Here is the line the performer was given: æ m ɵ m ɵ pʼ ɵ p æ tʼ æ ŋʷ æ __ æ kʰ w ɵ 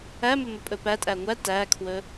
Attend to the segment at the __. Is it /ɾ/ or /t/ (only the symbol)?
t